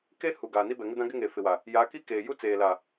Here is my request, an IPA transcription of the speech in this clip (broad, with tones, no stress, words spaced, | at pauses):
ke˦ hu˨ ɡaː˨ni˦bɛ˨ ŋɪ˦dã˦ɡɪ˦ ŋe˨ fɪ˨wa˨ | ja˨˦ki˦ keː˨ju˦ t͡seː˨la˨